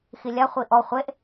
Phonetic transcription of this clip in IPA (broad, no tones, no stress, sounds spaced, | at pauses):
x i lʲ a χʷ i ʔ ɔ χʷ e ʔ